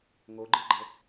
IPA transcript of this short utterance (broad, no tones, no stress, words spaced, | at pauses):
ŋoɡ͡ǃɯɡ͡ǃɤ